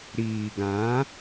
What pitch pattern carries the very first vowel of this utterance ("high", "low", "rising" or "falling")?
low